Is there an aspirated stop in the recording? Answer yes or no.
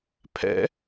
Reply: yes